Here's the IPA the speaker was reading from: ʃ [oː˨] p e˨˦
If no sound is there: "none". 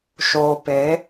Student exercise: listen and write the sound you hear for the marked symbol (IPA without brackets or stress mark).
oː˨